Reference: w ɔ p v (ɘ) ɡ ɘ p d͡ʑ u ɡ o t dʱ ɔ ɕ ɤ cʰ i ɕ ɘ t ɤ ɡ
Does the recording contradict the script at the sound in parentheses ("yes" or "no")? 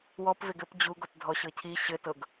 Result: yes